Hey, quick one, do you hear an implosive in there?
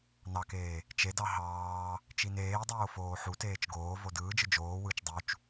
no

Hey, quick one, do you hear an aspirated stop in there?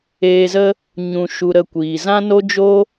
no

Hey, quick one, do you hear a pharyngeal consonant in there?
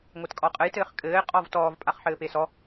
yes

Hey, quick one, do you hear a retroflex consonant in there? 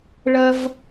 yes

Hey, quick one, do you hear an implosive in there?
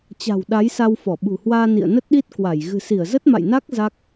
yes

